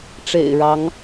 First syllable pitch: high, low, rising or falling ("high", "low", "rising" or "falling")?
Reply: low